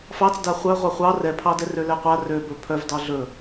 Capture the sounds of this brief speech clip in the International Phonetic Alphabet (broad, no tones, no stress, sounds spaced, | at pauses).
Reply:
f ɑ t͡s d a χʷ œ ʁʷ ɑ χʷ ɑ r ɛ pʰ ɑ d ɛ r ø l ɛ qʷ a r ø b ɵ pʰ œ v d ɑ ɮ ɵ